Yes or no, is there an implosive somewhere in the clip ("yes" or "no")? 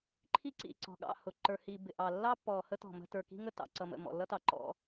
yes